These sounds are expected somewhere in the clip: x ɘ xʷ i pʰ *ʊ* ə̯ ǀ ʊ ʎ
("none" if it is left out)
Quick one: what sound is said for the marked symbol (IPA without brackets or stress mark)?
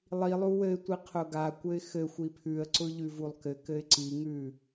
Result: ʉ